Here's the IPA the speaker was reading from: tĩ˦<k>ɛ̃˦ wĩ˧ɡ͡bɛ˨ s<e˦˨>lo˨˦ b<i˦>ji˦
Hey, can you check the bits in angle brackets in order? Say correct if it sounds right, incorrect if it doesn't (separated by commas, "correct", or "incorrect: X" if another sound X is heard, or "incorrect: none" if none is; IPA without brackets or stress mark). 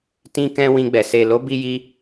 correct, incorrect: e˨, correct